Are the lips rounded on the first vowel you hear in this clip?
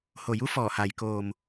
yes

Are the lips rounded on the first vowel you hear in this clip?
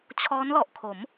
yes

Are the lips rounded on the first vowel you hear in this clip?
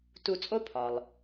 yes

